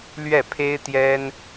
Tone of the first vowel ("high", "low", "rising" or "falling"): falling